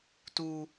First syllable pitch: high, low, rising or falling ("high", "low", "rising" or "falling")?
low